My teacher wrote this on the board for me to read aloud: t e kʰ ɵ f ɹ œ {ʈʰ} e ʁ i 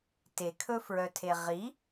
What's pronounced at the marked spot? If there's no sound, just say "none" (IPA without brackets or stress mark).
tʰ